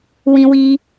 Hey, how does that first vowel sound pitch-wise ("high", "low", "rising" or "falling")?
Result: high